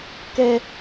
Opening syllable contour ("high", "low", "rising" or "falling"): high